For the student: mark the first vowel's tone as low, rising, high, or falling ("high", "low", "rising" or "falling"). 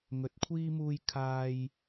rising